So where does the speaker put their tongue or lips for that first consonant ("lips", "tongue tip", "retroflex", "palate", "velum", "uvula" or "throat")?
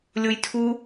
tongue tip